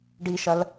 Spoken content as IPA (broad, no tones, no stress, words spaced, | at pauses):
ɖiʃɐl